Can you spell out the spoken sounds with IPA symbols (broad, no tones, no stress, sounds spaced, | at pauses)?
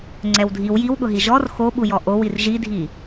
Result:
ŋ͡ǀ ɛ w dʱ i w j i w ɠ ʊ ɦ i ʒ ɔ r x o ɓ u j ɔ ʔ o w i r ʒ i dʱ i